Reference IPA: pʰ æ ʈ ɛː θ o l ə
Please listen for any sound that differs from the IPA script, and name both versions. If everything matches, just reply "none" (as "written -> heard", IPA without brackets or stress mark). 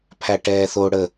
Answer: l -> ɽ